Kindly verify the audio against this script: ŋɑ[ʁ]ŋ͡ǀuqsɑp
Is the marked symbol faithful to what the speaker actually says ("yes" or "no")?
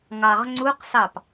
yes